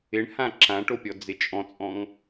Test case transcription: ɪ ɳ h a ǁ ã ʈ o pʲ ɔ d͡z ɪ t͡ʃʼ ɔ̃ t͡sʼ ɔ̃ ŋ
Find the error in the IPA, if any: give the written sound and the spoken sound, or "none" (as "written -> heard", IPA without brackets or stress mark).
a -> ã